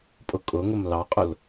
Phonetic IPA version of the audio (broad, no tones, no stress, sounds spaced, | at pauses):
pʼ ʊ kʼ ʊ ŋ ʊ m l ɑ qʼ ʊ l